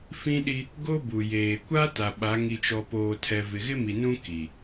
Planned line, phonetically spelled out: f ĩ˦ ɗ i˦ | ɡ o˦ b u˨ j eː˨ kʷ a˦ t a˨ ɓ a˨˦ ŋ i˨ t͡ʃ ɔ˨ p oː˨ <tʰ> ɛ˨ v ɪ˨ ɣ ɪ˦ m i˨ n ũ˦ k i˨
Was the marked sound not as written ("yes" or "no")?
no